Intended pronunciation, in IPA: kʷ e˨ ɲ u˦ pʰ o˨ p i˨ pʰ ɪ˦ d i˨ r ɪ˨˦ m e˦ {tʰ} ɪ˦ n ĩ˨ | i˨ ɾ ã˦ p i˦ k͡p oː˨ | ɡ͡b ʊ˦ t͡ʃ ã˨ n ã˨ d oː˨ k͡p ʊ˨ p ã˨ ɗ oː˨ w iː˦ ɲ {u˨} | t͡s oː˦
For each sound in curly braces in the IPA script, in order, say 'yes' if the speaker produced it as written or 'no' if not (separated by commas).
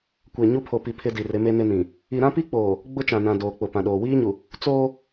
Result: no, yes